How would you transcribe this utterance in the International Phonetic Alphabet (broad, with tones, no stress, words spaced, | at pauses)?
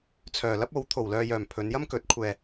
t͡sʰœː˨lɐ˥p̚o˨˥w t̪ʰo˨wlœː˧jœː˨m pʰɵ˨˧njɐ˥mkɵ˨˥t̚ kʷʰɛː˧